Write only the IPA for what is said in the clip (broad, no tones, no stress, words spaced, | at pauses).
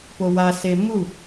powa semu